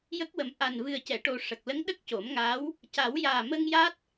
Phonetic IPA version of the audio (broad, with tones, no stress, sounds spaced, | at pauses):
j ə˦˥ k̚ w ə˨˩ m ʔ a˨˩ n v ɨ˨˩ ə̯ c ɛ˨˩˨ ʈ o˨˩ ʂ ə˨˩ k̚ l ə˧˥ ŋ ɗ ə˦˥ k̚ c o˨˩˦ m ŋ aː˧˥ w | c a˨˩˦ w j aː˨˩ m ə˧ ŋ j a˦˥ t̚